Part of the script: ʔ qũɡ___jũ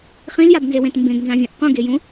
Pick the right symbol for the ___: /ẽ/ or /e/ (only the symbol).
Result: e